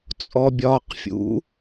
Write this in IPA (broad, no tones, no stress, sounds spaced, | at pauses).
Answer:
t͡sʼ ɔ bʲ ɒː q fʲ ṵ